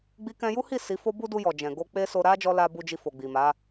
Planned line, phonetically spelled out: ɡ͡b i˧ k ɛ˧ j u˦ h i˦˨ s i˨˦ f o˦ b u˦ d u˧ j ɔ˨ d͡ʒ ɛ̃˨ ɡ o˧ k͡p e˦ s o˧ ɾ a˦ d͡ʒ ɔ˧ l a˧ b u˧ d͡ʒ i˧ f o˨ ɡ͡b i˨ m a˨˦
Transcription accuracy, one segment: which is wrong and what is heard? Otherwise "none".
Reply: ɛ˧ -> ɛ̃˧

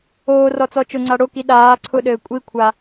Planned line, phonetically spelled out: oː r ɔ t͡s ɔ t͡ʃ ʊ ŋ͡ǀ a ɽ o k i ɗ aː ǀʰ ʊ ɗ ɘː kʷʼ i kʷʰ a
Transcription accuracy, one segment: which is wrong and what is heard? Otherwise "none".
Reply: none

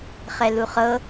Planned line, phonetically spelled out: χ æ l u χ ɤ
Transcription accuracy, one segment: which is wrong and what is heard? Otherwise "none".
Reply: æ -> ɛ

